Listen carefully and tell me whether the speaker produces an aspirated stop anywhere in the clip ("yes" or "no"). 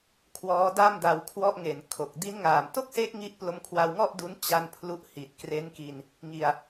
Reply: yes